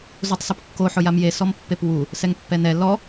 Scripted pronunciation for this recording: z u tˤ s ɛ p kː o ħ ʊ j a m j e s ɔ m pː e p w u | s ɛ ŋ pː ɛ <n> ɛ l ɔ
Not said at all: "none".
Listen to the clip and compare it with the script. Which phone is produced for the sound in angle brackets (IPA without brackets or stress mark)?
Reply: n